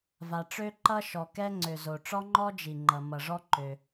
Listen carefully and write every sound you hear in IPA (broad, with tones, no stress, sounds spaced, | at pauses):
v a˩ ʈ͡ʂ ø˥ ǃ ʌ˥ ʃ ɔ˩ k ɛ˥ ŋ͡ǀ ø˩ z o˩ ʈ͡ʂ ɔ˥ ŋ͡ǃ ɔ˥ d͡ʒ i˩ ŋ͡ǃ ʌ˩ m ʌ˩ ʐ ɔ˥ ǃ ø˩